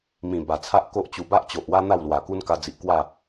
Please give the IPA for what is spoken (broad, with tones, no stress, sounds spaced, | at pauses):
m ĩ˨˩ b a˨˩ t͡sʰ a˦ ʔ k o˦ ʔ t͡ɕ u˧ b a˦ ʔ t͡ɕ o˨ ʔ w a˦ n̪ a˥˧ w l w a˨˩ k u˦ n k a˧ d͡z i˨ ʔ k w a˥˧